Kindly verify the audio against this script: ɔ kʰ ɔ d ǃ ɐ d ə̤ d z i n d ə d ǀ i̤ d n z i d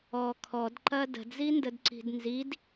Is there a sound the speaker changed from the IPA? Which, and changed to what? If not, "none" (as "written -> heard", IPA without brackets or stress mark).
none